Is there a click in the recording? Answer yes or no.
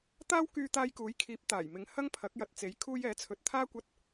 no